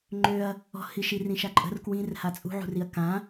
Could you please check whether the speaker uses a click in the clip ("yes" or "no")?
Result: yes